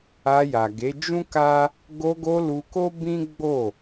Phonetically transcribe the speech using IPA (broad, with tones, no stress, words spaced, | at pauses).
a˧ja˨ɡe˨˦ d͡ʒũ˦ka˦ | ɡo˧ɡo˧ lu˧ko˦bĩ˦ ɡ͡bo˦˨